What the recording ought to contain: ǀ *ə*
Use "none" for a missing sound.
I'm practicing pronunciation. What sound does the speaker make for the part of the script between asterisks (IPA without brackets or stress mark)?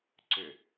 ʏ